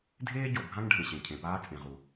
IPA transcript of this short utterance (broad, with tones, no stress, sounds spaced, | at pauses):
dʱ eː˥ ɟ o˩ bʱ ã˥ ŋ ɖʱ ẽ˩ ɕ ẽ˩ cʰ ẽ˩ p aː˥ t͡sʼ ẽ˩ ʁ u˩